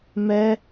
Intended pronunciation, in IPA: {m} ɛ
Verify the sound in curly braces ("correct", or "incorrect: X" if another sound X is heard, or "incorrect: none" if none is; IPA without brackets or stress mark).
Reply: correct